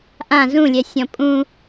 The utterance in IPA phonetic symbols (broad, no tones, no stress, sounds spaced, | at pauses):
ʔ ã z ũ lʲ ɛ sʲ ɔ̃ pʼ ũ